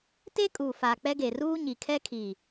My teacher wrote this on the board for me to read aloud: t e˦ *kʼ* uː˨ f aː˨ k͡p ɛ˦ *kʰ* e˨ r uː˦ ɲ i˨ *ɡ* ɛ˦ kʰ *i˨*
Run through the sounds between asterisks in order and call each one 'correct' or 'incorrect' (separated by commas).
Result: correct, incorrect, incorrect, incorrect